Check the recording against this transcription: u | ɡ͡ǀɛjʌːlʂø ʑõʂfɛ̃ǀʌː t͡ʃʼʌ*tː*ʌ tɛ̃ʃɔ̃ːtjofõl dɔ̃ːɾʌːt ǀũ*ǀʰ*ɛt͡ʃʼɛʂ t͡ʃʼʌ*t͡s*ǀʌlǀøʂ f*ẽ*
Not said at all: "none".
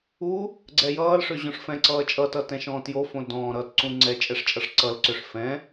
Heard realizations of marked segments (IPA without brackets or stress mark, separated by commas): t, ŋ͡ǀ, ʂ, ɛ̃